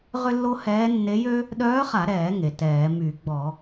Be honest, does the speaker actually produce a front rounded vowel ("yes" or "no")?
yes